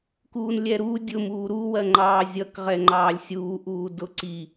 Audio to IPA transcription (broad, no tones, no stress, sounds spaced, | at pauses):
k uː n lʲ ɛ ɾ u dʲ ʊ m uː ɾ u w ɜ ŋ͡ǃ ɑː zʲ ʌ k ʁ ɛ ŋ͡ǃ ɑː lʲ sʲ uː ʔ uː d ʊ ǀ i